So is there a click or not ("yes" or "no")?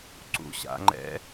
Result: yes